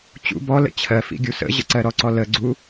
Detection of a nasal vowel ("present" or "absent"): absent